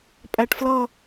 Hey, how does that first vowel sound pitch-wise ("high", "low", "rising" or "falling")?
low